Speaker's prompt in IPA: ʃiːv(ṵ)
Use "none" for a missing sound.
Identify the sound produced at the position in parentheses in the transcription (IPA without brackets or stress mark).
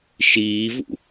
ṵ